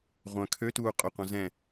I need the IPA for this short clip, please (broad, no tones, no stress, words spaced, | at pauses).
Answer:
ʁʷœ̃ kʰøtuː qʼʊ qʷɐ̃zɛ̃